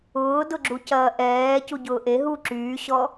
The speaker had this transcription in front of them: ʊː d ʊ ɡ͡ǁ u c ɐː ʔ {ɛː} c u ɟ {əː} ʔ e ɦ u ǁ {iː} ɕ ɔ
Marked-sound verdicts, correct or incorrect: correct, incorrect, incorrect

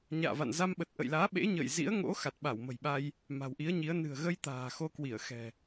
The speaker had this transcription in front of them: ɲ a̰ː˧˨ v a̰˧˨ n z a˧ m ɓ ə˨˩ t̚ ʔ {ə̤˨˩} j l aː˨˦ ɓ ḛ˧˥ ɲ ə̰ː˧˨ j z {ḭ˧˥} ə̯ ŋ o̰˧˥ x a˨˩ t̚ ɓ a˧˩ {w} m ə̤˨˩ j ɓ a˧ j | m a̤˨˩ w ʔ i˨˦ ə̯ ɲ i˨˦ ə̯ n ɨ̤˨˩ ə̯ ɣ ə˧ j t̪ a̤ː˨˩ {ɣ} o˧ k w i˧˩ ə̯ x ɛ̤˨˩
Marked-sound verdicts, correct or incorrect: incorrect, correct, correct, incorrect

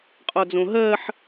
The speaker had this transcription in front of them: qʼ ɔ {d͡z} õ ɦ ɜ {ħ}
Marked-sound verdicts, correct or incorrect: correct, correct

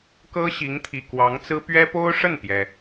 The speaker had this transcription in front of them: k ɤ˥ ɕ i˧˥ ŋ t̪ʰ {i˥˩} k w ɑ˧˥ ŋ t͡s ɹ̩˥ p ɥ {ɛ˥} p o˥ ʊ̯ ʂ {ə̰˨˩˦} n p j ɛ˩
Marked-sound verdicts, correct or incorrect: incorrect, correct, incorrect

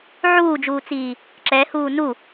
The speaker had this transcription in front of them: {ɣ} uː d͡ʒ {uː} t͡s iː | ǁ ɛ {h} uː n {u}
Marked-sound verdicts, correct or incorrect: incorrect, correct, correct, correct

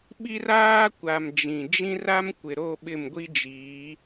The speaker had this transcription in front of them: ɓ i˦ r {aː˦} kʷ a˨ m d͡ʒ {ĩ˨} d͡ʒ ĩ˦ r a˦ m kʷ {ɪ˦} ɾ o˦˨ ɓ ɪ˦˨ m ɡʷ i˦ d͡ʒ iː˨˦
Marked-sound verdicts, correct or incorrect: correct, correct, incorrect

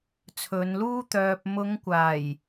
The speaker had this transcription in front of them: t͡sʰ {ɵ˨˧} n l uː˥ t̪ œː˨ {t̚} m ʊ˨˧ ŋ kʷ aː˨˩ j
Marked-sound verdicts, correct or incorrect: correct, incorrect

